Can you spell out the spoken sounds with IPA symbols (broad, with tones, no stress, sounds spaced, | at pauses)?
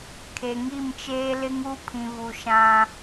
kʰ e˨ ŋ i˦˨ m t͡ʃ eː˦ l ɪ˦ ŋ u˦ pʰ ĩ˨ v u˨ ʃ ã˦